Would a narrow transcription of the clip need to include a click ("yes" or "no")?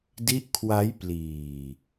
no